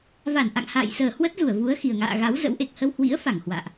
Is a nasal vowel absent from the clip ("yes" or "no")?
yes